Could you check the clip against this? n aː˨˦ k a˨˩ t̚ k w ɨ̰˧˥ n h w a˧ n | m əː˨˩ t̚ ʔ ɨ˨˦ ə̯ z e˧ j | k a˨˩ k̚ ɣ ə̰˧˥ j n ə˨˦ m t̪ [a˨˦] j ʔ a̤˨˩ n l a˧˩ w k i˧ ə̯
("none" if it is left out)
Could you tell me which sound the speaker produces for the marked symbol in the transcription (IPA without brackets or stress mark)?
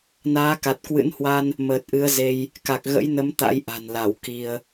a̰˧˥